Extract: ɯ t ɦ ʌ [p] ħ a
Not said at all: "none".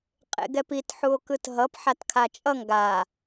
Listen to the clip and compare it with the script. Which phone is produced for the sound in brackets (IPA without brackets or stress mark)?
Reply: p